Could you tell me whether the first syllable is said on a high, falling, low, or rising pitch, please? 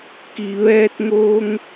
low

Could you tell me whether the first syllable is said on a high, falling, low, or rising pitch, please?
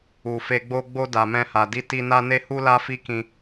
low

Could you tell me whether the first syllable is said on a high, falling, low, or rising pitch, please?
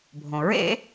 low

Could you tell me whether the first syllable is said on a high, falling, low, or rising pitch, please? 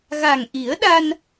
low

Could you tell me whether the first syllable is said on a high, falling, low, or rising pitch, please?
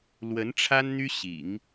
rising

